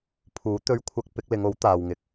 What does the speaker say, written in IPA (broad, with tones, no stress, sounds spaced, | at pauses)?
pʰ uː˨˥ t̪ ɵ˧ ɥ kʷʰ ɐ˧ k̚ p ɪ˨˥ k̚ l ɪ˨˧ ŋ o˨˥ w t̪ aː˨ w ŋ ɪ˨˥ k̚